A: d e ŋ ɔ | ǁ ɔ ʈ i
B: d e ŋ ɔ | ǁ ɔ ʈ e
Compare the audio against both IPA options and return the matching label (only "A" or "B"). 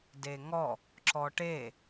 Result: B